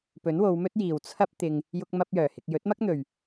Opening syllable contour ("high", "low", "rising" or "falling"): rising